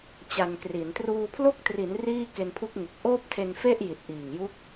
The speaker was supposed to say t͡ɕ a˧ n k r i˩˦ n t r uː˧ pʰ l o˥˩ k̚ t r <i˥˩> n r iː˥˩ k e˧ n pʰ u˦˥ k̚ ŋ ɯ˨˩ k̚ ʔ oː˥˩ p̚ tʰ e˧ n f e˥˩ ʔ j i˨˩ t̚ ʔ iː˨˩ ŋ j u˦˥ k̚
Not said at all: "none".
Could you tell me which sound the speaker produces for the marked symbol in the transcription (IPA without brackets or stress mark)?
i˩˦